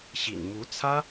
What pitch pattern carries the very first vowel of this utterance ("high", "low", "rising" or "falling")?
low